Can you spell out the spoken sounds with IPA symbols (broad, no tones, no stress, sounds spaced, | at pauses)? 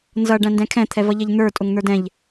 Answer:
n z ʌ ɖ æ̃ n d ɛ̃ kʰ ɛ̃ t̪ʰ ɛ v ʌ ʎ ɛ ʎ n̪ ə˞ tʼ ʊ ŋ n̪ ə˞ d ɛ̃ ʎ